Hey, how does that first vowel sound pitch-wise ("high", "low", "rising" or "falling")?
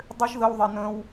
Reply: high